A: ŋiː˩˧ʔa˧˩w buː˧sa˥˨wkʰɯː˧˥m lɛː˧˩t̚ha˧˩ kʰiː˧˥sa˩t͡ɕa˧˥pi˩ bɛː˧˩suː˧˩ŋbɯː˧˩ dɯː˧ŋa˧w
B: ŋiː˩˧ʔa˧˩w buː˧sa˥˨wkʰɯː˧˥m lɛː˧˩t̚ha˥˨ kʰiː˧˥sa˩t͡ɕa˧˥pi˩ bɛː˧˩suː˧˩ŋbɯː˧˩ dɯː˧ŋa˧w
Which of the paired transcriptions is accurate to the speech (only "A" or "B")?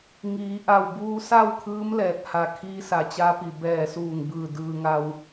A